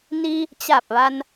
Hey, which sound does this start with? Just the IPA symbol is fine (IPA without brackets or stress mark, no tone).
n